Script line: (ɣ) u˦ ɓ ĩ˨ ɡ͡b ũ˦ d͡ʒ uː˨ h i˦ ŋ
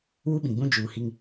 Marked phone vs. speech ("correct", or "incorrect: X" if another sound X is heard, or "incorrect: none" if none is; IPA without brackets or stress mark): incorrect: w